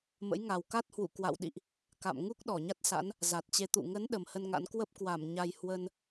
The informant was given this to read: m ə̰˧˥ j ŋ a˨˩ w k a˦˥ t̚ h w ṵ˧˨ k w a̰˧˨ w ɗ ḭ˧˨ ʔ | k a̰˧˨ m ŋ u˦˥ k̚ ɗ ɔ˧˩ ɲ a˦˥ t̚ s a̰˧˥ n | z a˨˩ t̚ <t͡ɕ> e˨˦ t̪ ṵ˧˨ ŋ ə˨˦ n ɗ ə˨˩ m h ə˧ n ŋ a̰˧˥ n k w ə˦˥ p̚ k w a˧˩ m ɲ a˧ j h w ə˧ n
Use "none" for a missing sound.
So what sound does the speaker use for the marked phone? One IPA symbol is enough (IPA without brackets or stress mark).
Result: t͡ɕ